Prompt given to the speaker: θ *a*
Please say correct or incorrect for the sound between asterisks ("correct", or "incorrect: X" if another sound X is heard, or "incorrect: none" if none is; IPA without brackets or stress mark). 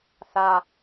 correct